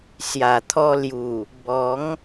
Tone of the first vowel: low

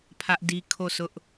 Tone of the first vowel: high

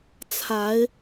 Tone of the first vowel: rising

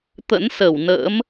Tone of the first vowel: rising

